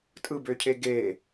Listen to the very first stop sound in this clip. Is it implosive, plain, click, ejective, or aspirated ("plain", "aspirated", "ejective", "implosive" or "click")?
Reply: ejective